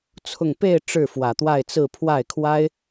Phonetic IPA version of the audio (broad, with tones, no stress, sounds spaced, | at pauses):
t͡sʰ ʊ˥˧ ŋ p e˥˧ ɪ̯ ʈ͡ʂ ɻ̩˥˩ f w ä˨˩ t̪ w a˥˧ ɪ̯ t͡s ɹ̩˥˧ pʰ w a˥˩ ɪ̯ kʰ w a˥ ɪ̯